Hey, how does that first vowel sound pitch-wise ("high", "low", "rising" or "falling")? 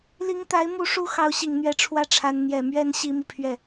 rising